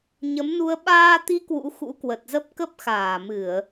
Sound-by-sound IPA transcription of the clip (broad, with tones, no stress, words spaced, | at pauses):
ɲə˨˦mnu˧ə̯ ɓaː˧t̪i˨˦ kwṵ˧˥xṵ˧˥kwə˨˩t̚ zə˦˥p̚kə˦˥p̚xaː˧˩mɨ˧˩˨ə̯